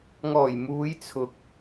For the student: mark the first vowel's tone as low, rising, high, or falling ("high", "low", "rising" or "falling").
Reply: low